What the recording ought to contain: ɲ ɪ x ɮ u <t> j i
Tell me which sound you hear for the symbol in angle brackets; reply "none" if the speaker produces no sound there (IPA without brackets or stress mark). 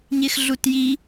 t